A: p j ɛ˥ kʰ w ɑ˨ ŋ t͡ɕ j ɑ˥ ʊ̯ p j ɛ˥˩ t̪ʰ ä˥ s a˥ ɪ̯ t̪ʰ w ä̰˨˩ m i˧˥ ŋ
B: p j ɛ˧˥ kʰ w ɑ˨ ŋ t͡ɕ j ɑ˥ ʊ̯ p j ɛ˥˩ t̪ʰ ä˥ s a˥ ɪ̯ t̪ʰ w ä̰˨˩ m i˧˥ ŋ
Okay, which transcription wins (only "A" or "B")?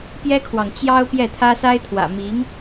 A